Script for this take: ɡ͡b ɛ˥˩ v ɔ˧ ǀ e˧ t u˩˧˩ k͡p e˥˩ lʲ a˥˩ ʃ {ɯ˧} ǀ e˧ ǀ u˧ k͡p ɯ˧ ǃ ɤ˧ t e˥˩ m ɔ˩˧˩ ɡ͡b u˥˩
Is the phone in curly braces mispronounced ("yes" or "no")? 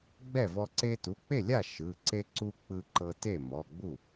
yes